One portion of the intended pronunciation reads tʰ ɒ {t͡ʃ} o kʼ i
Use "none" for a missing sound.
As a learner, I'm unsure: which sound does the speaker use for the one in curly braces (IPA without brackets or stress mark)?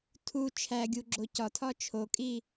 t͡ʃʰ